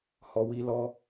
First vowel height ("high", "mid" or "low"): mid